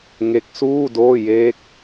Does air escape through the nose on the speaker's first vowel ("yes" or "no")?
no